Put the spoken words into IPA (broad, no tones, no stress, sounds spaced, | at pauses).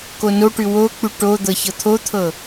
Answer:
k o n o ʈ ʉ w o k͡p ʉ ʈ o d̪ ɤ ç ɤ t̪ʰ o t̪ʰ ɤ